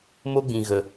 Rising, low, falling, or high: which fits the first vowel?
high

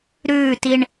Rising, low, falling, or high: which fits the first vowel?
falling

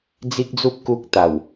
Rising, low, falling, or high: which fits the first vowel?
high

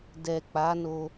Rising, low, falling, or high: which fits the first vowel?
low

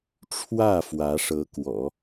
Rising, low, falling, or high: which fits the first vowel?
falling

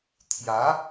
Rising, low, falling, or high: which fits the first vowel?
rising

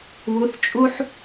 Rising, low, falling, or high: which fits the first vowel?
rising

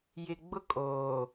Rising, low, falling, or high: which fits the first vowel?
low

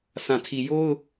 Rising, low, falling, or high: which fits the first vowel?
low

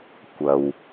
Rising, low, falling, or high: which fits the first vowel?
low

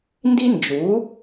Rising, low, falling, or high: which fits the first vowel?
high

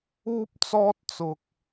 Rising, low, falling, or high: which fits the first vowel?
high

